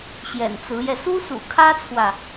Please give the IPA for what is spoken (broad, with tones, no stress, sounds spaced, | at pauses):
ɕ j ɛ̰˨˩ n t͡s ɹ̩˧˥ j ɛ˧ s u˥ s ṵ˨˩ kʰ ä˥ t͡sʰ w ä˨